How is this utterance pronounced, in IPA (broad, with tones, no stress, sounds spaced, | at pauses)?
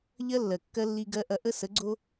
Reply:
ʎ ɜ˦ lː ɜ˨ kː ɜ˦ lː i˦ ɡ ɜ˦ ʔ ɐ˦ ʔ ə˦ s ə˨˦ ɡ͡ǀ o˦